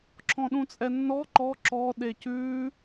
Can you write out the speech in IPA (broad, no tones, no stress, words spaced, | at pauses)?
ǁʰɔ̃ɗũt͡sʼɛnːɔ ǃɔ ǁɔ ɗecʉ